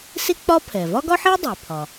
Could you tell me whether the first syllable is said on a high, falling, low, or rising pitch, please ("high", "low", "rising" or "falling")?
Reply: high